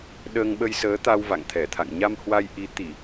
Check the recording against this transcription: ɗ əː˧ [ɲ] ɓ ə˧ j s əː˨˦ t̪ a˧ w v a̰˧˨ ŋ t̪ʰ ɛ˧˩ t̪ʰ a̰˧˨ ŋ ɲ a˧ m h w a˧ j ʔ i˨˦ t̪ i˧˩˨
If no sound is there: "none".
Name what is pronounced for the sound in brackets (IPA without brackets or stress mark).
ŋ